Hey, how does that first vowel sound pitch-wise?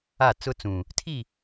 falling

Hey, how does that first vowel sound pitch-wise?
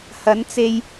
rising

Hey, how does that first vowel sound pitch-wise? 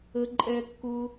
low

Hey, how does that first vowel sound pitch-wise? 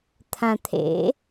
low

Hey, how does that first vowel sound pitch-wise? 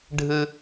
high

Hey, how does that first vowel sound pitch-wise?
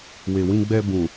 low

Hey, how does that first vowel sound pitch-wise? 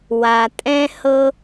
low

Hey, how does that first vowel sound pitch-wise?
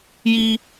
high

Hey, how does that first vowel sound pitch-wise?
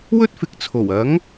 high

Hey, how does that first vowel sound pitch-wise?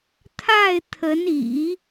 falling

